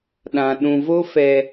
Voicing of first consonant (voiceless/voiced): voiced